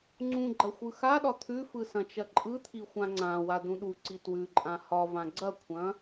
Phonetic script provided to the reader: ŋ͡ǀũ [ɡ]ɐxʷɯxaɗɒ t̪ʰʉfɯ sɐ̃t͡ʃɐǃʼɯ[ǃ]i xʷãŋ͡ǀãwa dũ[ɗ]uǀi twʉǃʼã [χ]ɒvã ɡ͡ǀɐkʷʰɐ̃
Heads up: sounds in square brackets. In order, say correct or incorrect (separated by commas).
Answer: incorrect, incorrect, correct, incorrect